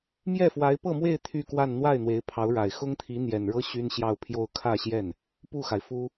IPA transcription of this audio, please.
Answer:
m j ɛ˥˩ f w a˧˥ ɪ̯ p ɤ˥˧ m w e˥˧ ɪ̯ t̪ʰ y˥˧ k w a˥˧ n n̪ w a˥˩ ɪ̯ n̪ w e˧˥ ɪ̯ pʰ ɑ˧˥ ʊ̯ ɻ a˨˩ ɪ̯ x ʊ˥ ŋ t̪ʰ i˧˥ n̪ j ɛ˨˩ n ɻ ɤ˥ ɕ y˥ n ɕ j ɑ˥˧ ʊ̯ pʰ j o˥˧ ʊ̯ kʰ ä˥˧ ɕ j ɛ˥˩ n | p u˥˩ x a˩ ɪ̯ f u˥

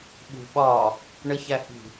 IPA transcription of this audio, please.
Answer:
ɓ ṳ ɓ ɒ | ɳ ə ç æ h i̤

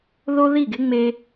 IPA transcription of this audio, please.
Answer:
ð o˦ ð i˦˨ ɡ e˦ ŋ͡m e˦

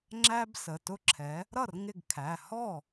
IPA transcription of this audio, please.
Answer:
ŋ͡ǁ æ˥ b s ə˩˧˩ t ʊ˥ ǁʰ ɛ˨˥ | ɾ ʌ˥˩ r ŋ ɪ˥˩ ɡ kʰ æ˩˧˩ h ɔ˥˩

